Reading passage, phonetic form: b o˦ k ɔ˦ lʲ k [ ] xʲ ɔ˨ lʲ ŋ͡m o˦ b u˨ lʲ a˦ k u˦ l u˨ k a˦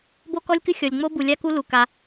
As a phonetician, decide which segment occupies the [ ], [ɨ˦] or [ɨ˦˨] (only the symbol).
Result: ɨ˦